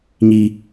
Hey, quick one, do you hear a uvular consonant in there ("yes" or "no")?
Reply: no